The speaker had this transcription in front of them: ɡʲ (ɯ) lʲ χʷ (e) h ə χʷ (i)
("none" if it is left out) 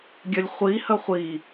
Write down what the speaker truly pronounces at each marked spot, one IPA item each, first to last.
ə, i, i

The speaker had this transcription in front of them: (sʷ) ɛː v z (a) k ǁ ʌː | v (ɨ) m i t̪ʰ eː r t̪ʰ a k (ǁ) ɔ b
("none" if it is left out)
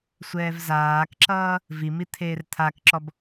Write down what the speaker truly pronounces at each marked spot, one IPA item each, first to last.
sʷ, aː, i, ǁ

